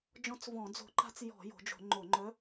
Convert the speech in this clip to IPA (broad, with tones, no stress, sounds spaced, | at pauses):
d͡ʒ ɔ̃˧˥ t͡s v ɔ̃˧˩˧ d͡z o̤˧˩˧ ǃ a̤˧˥ t͡s j ɔ̤˧˩˧ j o̤˩˧ d͡ʒ o̤˧˩˧ ŋ͡ǃ o˧˩˧ ŋ͡ǃ œ˧˥